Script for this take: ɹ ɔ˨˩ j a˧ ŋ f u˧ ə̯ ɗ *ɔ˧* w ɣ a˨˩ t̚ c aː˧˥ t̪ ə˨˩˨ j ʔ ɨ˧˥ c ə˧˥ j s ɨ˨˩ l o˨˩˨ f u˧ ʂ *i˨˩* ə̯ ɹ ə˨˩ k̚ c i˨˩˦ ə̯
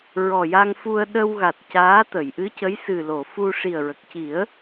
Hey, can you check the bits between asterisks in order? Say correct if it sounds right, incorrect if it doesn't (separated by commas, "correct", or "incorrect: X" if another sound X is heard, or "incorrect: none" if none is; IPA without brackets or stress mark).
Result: incorrect: ə˧, correct